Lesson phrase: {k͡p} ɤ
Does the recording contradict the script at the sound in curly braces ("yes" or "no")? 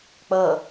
no